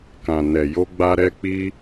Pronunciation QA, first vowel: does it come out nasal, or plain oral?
nasal